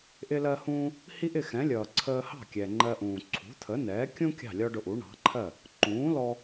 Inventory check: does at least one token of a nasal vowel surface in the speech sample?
yes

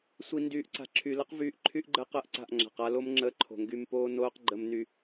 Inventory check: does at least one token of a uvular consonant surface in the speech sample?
yes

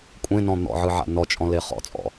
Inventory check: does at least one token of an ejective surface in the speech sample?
yes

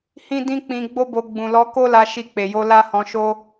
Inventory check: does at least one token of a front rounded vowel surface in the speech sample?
no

